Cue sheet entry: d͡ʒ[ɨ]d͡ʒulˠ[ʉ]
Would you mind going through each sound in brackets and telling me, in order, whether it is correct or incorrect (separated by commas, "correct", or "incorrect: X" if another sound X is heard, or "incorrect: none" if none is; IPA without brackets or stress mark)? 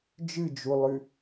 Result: correct, correct